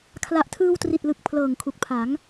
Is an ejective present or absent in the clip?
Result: absent